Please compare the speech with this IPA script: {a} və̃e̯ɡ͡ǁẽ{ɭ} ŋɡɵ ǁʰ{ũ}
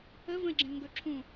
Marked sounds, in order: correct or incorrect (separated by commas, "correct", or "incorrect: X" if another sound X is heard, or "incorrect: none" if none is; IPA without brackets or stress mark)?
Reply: incorrect: ə, incorrect: l, correct